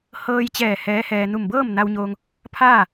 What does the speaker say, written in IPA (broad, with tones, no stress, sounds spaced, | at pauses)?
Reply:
h ɤː˧ j t͡ɕ ɛː˧˩ h ɛː˧˥ h ɛː˧ n u˧˩ m b ɤː˥˨ m n a˧ w ɲ oː˧ ŋ | pʰ aː˥˨